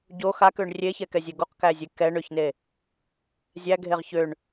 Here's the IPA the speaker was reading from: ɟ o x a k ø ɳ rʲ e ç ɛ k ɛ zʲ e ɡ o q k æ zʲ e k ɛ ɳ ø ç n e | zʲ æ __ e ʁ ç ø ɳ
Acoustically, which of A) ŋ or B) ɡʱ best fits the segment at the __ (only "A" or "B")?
B